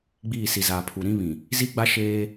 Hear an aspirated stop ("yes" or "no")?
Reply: yes